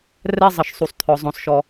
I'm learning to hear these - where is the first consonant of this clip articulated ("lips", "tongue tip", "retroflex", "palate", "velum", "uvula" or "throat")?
tongue tip